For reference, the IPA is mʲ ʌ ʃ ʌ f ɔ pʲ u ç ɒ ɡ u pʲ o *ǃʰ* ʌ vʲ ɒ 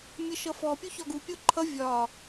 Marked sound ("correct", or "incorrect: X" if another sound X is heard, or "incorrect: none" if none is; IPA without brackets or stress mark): correct